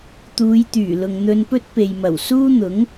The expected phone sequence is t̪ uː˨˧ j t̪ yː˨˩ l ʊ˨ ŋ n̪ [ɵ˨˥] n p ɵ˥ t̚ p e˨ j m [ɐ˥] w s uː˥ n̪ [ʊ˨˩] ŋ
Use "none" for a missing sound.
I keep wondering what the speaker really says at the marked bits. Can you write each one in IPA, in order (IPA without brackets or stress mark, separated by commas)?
ɵ˧, ɐ˨˩, ʊ˨˥